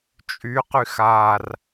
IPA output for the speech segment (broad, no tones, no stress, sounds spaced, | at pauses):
t͡ʃʼ y q y x a r